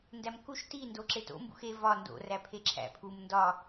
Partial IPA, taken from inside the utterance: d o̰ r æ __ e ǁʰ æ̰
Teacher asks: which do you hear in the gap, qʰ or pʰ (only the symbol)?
pʰ